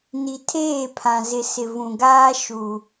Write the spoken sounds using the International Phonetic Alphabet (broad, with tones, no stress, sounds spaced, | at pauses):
n i˨ tʰ eː˦˨ pʰ ã˨ z ɪ˨ s ɪ˨ v ũ˨ ɡ aː˦ ʃ u˨